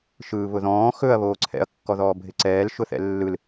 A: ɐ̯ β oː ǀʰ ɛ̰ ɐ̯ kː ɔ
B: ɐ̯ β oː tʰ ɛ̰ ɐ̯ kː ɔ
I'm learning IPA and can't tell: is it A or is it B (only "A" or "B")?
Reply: A